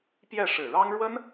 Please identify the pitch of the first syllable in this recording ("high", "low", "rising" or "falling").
falling